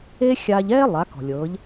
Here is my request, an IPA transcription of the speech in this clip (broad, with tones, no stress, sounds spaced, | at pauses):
eː˥ xʲ aː˧ ʎ ɛː˥ lˠ a˩˧ k ɔ̤˩ lʲ ɤː˩˧ ʎ